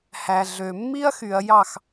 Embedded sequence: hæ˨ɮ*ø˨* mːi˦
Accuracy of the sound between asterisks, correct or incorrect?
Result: correct